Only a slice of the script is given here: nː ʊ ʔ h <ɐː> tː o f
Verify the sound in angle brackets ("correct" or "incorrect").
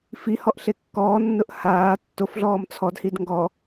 incorrect